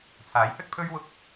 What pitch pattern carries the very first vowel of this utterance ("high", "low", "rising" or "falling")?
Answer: rising